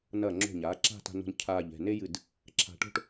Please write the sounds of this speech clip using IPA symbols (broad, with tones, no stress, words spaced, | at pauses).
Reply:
nɐː˧˩ŋ͡ǁo̤˧˩ɲaː˩˧ ǁa̤˥˧ta̤˧no̤˧n cʰaː˧˩ʎɛ̤˧˩ ne˥jɨ˧˩d | ǁʰa̤˧ʈo̤˥ʈ